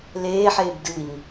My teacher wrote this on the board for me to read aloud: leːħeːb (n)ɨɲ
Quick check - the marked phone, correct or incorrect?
incorrect